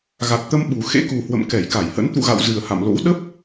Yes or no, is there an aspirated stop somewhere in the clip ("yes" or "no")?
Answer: no